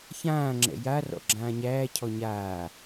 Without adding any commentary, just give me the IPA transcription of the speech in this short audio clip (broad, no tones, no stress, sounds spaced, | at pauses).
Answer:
ç ãː ŋ͡ǁ ɛ̰ j a r ɔ̰ ɡ͡ǁ ãː ɲ æː cʰ ɔ ɲ aː